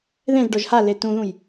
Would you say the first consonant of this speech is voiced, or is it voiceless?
voiced